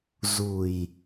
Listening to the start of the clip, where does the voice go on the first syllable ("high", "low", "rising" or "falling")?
low